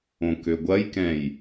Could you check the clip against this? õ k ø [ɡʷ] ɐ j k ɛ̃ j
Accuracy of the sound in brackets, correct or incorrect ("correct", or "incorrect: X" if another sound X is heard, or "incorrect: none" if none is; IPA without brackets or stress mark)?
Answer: correct